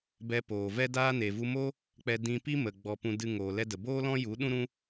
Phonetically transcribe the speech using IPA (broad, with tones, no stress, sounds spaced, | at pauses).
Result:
b ɛ˧ p oː˨ v ɛ˦ d aː˦ n e˨ v u˧ m o˦ | k͡p ɛ˧ d ĩ˧ p i˦ m ə˨ ɡ͡b ɔ˨ p ũ˨ d ɨ˨ ŋ oː˨ l ɛ˧ d ə˨ b oː˦ l ɔ̃˦ j u˨˦ ɗ ũ˦ ɾ ũ˦